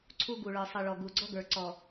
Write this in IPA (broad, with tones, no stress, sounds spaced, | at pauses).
ǀʰ u˦ ɡ u˨ ɭ ə˞˨ sˤ ɨ˨ ɭ ɔ˨ ɡ u˨ ɡ͡ǀ ɔ˦ ɡ ə˞˨ ǀ ɔ˨